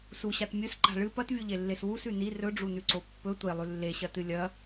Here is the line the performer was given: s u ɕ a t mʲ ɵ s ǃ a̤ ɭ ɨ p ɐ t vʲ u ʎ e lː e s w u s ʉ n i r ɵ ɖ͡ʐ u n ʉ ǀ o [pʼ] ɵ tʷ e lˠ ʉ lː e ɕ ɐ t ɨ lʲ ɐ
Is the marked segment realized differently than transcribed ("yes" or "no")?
yes